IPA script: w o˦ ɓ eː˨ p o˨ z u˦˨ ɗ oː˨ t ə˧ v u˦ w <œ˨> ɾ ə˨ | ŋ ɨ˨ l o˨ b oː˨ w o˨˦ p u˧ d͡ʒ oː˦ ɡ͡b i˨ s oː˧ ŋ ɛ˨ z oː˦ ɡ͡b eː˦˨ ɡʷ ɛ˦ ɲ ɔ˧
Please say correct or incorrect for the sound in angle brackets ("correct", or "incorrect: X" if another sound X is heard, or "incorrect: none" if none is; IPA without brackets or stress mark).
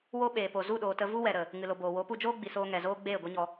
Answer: incorrect: ɛ˨